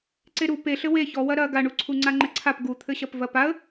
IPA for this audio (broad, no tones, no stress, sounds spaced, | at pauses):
ǀ e ɾ u p e ɬ ɘ w e ç ɔ w ɐ ɾ ɐ ɡ a ɳ u ǀʰ u ŋ͡ǀ a ŋ͡ǃ ɘ ǀʰ a p ɡ u t̪ʰ ɘ ɕ ɐ p v ɐ p a ə̯